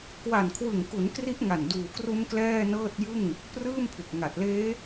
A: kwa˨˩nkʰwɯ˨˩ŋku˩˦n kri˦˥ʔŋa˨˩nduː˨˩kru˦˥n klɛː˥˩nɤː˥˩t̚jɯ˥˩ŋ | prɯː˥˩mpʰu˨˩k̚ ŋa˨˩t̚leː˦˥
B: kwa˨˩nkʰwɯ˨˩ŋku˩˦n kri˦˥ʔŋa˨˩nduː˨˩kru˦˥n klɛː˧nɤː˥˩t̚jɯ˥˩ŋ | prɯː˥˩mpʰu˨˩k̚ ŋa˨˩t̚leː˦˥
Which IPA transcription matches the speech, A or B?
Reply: A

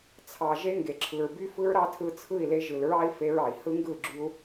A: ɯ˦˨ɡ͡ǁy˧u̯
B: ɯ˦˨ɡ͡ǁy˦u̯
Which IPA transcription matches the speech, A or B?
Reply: A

